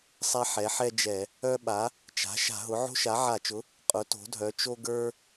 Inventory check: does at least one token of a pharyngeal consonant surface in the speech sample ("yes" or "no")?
yes